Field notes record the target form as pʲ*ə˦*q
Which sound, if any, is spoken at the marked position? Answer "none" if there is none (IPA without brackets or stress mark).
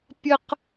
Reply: ə˦